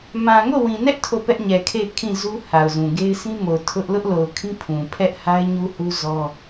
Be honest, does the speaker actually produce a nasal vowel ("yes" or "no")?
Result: yes